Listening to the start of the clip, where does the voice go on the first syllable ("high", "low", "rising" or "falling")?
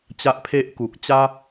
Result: high